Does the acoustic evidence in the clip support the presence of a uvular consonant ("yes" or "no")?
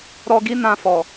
no